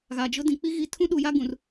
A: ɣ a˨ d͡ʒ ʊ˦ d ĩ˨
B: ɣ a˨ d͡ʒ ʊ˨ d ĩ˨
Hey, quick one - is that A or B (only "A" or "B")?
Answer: A